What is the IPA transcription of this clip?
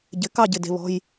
ɟɪ˨˦ kɑ˦˨ɟɪ˩˧˩ de̤˦˨βɔ̤˧˥˧j

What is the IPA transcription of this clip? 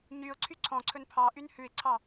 ɲyʊ̯ǀʰy ǀʰɔ̃ǀʰɵn pʰɑʔyn hʉɪ̯ǀʰɑ

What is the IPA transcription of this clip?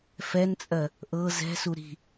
fɛnt͡sʼɜ | ʔɤ zɛ̤su ɾi̤

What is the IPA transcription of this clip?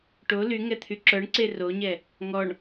ʈo lyŋɛ t̪ʰyǁœɳǀe roɲɛ | ŋɔɳ

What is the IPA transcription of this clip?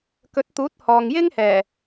kɵ˨˥t̚t̪uː˨˥t̚ hɔː˨ŋjɪ˥ŋhɛː˨˩

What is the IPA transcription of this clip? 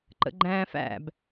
ǃə̰ɡ͡ǃæ̃ːfæ̰b

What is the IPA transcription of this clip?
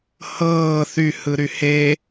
hɤː θy hɯɾyhe

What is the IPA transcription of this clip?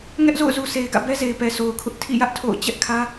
ŋɛ˦ʔzo̰˦˨ʊ̯zu˨ sʰe˨ɪ̯ɡä̰˦˨bɛ˦ze˨ɪ̯ pɛ˨sʰo˨ʊ̯kʰʊ˦ʔ tʰḭ˦˨jä˦ʔ tʰo̰˦˨ʊ̯ t͡ɕɛ˦ʔkʰä˦

